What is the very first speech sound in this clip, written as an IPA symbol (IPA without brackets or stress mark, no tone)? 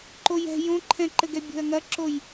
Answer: ǃ